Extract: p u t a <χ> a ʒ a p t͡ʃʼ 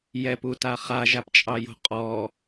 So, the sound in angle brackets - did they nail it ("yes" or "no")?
yes